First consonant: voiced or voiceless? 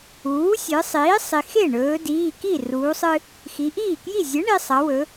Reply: voiceless